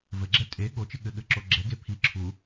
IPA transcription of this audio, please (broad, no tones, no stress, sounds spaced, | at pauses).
v ɘ ɡ͡ǁ ɛ tʼ e ɠ o t͡ʃ ɨ ɠ ɘ ɠ ɘ ǁ o ɡ͡ǁ ɛ ɡ e pʰ i ǁʰ u